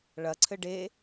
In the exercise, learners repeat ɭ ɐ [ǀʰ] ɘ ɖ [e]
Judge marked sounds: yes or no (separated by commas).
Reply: yes, yes